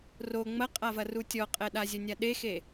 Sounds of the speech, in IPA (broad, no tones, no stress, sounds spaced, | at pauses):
r o ŋ͡m ɐ qʼ a v ɐ r u tʲ ɔ qʼ ɛ ɗ a zʲ ɐ nʲ a ɗ e x e